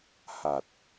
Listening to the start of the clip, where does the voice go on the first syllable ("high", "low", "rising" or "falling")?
low